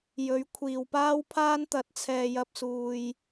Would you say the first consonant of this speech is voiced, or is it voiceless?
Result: voiced